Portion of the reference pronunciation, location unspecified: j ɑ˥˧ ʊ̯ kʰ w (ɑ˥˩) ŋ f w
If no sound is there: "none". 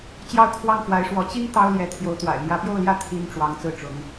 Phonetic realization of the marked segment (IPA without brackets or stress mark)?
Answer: ɑ˥˩